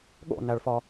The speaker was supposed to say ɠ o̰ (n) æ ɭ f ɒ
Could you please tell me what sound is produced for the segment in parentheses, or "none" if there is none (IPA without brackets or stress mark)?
n